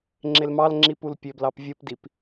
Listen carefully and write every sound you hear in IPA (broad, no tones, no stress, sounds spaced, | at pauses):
ŋ͡ǁ e l m ɑ l ŋ͡ǁ i p u l pʲ ø b l ɑ p vʲ ɯ p d i p